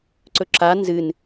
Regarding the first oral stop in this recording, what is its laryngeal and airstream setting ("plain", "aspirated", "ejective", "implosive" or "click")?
click